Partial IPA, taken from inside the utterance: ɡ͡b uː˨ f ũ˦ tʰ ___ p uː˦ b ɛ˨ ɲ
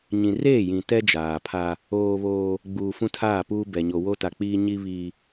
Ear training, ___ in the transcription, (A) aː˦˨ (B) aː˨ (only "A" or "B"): A